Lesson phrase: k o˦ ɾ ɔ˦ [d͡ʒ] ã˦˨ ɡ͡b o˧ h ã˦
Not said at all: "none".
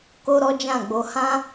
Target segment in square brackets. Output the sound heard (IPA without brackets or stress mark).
d͡ʒ